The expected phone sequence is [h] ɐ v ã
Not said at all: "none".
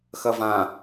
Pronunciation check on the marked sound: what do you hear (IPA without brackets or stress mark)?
x